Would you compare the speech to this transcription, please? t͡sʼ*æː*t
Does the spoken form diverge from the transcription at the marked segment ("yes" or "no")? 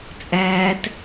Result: no